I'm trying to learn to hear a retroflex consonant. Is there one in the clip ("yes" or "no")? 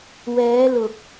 no